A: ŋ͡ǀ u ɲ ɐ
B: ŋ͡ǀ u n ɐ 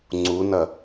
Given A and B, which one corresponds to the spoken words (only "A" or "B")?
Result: B